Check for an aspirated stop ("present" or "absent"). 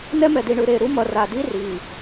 absent